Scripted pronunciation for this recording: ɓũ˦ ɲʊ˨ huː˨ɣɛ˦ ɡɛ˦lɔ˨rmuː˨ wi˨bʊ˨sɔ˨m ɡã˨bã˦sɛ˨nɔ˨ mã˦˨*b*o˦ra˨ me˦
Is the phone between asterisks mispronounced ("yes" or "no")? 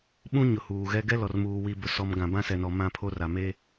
yes